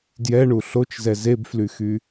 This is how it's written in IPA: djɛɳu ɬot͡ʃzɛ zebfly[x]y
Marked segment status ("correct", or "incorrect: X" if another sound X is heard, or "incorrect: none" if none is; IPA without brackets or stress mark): correct